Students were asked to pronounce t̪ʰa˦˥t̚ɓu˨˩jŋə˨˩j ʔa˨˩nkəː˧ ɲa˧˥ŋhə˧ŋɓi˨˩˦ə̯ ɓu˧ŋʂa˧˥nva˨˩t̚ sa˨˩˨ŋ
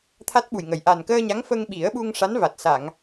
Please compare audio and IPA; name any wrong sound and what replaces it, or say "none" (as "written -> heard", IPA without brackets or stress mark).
h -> f